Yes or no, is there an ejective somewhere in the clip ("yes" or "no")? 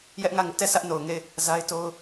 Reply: no